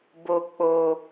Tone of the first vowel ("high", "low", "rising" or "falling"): falling